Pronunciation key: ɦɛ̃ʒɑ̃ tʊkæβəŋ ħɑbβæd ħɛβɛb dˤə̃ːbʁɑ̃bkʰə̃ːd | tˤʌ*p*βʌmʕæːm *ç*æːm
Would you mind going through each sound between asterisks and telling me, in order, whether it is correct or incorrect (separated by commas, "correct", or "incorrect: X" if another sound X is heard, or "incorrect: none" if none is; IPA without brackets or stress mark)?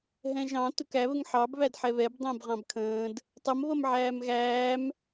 incorrect: m, incorrect: ɣ